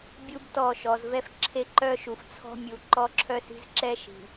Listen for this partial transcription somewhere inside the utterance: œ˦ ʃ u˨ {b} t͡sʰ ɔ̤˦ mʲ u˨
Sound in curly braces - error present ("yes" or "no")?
yes